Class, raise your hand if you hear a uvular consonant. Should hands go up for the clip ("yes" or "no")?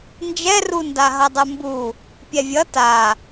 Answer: no